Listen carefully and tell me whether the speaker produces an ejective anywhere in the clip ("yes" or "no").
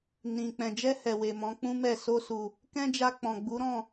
no